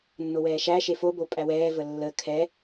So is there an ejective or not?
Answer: yes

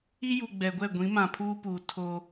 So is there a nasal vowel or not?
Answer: yes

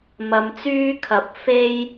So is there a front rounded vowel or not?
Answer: yes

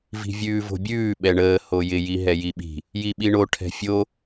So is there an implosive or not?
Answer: yes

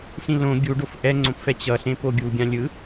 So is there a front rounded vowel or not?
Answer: no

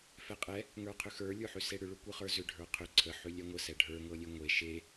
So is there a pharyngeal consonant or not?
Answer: yes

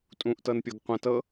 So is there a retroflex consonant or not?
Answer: no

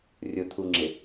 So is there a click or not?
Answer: yes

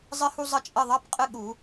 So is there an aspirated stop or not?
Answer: no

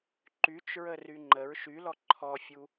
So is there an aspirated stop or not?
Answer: yes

